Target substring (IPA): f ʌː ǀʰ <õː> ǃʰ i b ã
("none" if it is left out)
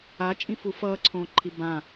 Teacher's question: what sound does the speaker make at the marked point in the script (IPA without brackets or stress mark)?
õː